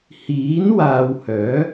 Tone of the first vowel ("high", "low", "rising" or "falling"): rising